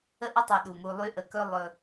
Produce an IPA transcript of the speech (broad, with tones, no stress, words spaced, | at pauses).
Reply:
ə˦ʔɵ˦ tˤɵ˨ɗu˩mu˨ lˠy˦ʔə˨kɵ˦ lˠɵ˨